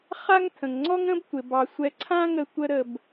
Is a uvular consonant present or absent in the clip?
present